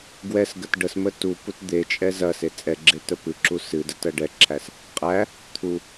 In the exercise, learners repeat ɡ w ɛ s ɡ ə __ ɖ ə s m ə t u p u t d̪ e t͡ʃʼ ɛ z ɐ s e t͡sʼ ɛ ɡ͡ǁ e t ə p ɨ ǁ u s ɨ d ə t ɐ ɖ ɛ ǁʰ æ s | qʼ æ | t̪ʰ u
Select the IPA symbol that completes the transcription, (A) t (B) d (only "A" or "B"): A